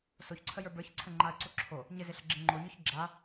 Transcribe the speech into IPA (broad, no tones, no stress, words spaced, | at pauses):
soçǀʰəjə˞ bə˞çǀʰəŋ͡ǃaə̯ǀo ǁʰo | ɲɪzɪɬəɡ͡ǁɪ ŋ͡ǃoɲɔç ɡ͡ǁa